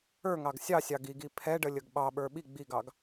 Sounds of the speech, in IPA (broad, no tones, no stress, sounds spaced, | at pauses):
ə˞ ŋ ɑ ɡ sʲ ɑ sʲ ɑ ɡ i ɡ i pʰ ɛ ɖ ə lʲ ə ɡ ɓ ɑ ɓ ə˞ ɓ i ɡ͡b i ɡ ɑ ɡ